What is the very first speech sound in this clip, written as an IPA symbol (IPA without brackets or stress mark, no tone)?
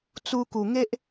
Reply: t͡s